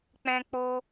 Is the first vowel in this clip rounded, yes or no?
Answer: no